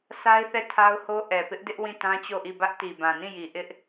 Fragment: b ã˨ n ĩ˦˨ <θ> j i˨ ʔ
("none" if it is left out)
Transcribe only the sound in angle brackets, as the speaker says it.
none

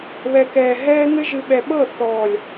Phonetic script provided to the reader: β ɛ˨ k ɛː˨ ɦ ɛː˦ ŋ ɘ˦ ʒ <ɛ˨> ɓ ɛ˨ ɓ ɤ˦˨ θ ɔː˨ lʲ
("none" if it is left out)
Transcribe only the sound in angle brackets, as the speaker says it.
ɨ˨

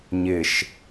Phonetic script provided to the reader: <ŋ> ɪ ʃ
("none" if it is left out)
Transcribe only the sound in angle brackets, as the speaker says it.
ɲ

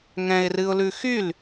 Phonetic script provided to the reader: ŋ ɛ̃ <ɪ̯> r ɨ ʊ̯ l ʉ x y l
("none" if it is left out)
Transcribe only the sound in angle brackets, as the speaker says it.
ɪ̯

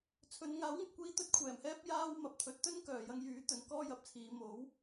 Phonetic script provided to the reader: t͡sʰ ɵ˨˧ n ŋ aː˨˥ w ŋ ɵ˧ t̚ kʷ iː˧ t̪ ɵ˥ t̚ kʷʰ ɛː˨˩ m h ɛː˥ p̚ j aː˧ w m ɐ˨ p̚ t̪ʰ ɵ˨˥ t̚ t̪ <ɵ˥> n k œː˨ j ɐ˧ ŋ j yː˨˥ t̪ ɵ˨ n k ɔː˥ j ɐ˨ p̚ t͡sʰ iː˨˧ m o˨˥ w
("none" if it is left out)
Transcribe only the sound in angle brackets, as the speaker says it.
ɵ˥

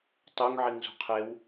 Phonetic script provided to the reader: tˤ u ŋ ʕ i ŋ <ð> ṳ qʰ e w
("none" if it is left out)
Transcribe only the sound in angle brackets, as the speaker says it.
z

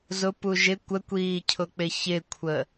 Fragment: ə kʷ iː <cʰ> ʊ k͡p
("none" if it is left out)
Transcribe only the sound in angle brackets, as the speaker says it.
cʰ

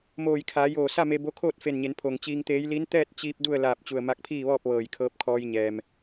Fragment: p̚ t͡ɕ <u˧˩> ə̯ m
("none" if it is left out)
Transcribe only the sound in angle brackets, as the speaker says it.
u˧˩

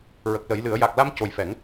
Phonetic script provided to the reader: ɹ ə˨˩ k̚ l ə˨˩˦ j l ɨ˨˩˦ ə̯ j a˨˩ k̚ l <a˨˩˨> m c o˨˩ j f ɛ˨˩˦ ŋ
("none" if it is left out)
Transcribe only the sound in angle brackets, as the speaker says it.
a˧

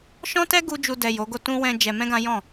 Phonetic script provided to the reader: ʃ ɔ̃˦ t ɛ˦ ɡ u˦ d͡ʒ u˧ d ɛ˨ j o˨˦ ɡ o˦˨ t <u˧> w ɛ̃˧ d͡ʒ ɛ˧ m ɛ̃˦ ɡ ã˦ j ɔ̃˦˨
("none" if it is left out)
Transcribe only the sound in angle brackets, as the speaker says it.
ũ˧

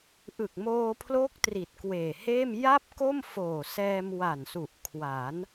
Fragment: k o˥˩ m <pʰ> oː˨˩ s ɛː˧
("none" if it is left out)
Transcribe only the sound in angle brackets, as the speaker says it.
f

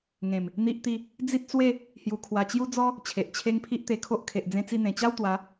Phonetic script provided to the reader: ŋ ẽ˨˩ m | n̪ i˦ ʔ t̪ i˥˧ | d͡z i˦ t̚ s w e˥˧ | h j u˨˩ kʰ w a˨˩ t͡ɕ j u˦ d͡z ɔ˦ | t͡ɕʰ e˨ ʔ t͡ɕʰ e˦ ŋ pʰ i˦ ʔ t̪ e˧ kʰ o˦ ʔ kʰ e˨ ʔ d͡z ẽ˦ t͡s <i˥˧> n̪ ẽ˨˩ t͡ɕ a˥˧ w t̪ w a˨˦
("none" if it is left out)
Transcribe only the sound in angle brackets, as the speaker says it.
i˥˧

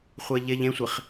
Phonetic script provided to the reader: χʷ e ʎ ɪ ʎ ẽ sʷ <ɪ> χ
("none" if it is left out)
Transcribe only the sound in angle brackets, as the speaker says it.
ɪ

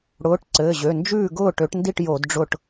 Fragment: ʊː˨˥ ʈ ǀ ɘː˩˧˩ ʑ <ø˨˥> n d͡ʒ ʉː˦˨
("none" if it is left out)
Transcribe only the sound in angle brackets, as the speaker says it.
ø˩˧˩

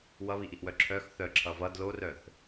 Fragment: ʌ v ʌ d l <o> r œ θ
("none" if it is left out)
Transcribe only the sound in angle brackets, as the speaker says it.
o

